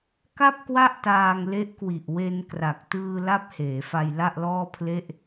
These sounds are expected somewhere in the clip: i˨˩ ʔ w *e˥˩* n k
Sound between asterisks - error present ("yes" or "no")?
yes